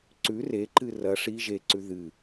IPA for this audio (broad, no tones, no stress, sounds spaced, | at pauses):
ǀ ʉ r e ǃ ɨ r ɐ ʂ i ʒ e ǀ ʉ ð ɨ